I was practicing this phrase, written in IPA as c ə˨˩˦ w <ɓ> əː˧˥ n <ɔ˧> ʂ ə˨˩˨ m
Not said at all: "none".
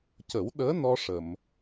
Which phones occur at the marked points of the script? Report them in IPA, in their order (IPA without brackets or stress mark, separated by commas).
ɗ, ɔ˧